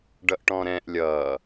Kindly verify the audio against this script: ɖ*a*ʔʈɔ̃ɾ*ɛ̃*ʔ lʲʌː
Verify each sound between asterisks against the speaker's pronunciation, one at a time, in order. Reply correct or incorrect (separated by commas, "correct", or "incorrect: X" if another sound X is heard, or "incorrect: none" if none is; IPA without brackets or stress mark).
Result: incorrect: ʌ, correct